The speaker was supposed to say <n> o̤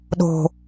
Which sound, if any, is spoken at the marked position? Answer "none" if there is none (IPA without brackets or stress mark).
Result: ɗ